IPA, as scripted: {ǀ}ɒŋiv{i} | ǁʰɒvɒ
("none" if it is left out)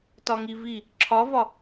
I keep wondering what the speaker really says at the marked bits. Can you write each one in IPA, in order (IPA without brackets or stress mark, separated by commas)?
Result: t, i